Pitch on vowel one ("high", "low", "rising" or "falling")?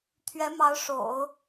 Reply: rising